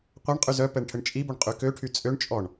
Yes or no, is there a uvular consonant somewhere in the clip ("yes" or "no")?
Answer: yes